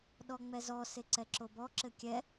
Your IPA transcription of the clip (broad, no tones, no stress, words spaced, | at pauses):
ɗɔŋ͡mɛzɔ seǀɛǁobɔ ǁɘkʲɛ